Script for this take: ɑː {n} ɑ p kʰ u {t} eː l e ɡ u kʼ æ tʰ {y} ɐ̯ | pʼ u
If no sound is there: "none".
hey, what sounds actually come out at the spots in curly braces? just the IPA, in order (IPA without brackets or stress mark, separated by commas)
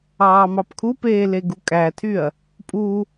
m, p, y